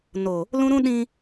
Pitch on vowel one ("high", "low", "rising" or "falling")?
low